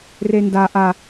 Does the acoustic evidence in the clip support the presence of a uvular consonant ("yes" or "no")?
no